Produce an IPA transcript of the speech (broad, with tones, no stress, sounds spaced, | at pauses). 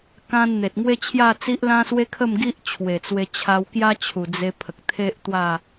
k ã˦ n n̪ e˨ t̚ ŋ w e˦ t͡ɕʰ j a˥˧ t͡s i˦ ʔ l ã˦ s w e˦ kʰ ə˥˧ m ɡ i˦ ʔ t͡ɕʰ w e˨˩ t͡s w e˧ t͡ɕʰ a˧ w k j a˦ t͡ɕʰ u˨˩ d͡z e˧ pʰ ə˨ k̚ t̪ʰ e˦ ʔ t̪ w a˥˧